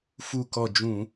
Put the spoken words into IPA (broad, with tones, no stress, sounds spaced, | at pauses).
f u˧˩ k ɔ˧˩ d͡ʒ ũ˧˩˧